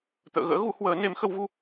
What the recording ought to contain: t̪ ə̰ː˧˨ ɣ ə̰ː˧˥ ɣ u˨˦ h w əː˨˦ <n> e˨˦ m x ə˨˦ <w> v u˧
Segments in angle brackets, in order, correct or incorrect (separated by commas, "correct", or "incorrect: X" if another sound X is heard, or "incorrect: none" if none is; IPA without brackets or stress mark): correct, correct